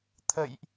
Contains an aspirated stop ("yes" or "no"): yes